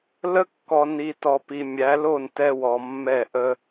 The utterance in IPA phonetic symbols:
lə˦kːɔ˨ ni˨tɔ˨ pi˨mʲæ˨˦lo˦˨n tɛ˦wɔ˨ mːɛ˦˨ʔə˦

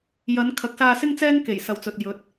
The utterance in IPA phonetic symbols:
jɐ˨˧n kʰɐ˨˥k̚saː˧sɪ˥ŋt͡sɛː˥ŋ ke˨˩jsɐ˨wt͡sɵ˨t̚ jɵ˨˥t̚

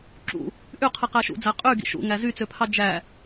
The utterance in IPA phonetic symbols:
ǁṵ | ʔyqʰɯ qæʃṵd͡zæ qʼy ɡḭʃṵŋæ zyt͡søpʰɑ d͡ʒæ

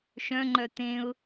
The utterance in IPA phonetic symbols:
ʃœ̃ŋ͡ǃœ t̪ẽʊ̯

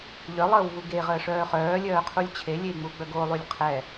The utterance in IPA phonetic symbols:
ʎœlˠəːwvu ɡeʁəːʂœː χœːlʲœːqʰulʲ t͡ɕʰelʲei̯ŋ͡muɡ͡bœ ɡolˠylʲ qʰɛ

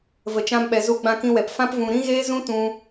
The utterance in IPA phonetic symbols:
və˨t͡ʃã˧mɓɛ˨ zu˧ɡ͡bã˧kĩ˧wɛ˨p fã˦pvũ˧ ɾĩ˦ɣeː˦zũ˦ tũ˦

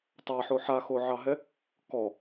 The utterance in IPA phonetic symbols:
tˤaħo ħaxoʕɑɦɛ | kɔ

